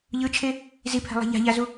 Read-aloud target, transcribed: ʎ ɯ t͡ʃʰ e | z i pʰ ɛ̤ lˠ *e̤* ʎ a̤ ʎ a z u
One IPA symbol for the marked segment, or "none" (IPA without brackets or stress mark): e̤